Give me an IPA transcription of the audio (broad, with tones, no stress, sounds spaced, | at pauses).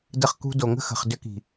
d ə˧ χ k ṳ˧ d o˨ ŋ ə̤˦ x ə̤˨ χ d ʏ˧ k i̤˨